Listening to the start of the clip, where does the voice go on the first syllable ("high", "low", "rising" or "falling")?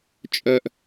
low